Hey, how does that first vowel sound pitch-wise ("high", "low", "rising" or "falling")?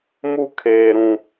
high